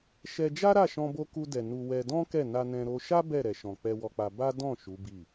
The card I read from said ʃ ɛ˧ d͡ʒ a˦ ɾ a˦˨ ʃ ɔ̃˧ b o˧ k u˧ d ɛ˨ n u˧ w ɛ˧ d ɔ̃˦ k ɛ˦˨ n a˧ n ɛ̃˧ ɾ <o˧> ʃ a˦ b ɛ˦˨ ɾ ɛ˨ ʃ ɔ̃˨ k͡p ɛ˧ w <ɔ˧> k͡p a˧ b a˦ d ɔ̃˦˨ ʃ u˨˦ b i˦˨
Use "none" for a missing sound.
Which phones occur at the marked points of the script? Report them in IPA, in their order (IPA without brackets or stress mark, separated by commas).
o˧, ɔ˧